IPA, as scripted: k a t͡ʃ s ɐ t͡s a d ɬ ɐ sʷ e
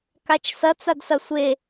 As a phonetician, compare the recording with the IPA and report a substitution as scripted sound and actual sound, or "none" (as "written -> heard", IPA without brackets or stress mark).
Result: ɬ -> s